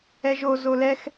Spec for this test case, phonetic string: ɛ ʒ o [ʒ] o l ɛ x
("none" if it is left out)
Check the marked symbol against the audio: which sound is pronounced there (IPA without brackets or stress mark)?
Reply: z